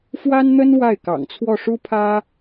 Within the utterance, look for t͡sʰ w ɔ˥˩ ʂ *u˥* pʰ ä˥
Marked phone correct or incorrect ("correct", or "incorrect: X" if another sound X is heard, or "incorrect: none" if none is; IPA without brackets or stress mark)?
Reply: correct